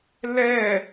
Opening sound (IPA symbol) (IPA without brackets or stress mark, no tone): l